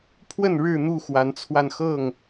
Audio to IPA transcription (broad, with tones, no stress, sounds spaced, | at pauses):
pʰ w ə˥˨ n ɻ ɻ̩˥˨ n̪ u˥˨ x w a˨˦ n t͡sʰ w a˧ n x ɤ˥˨ ŋ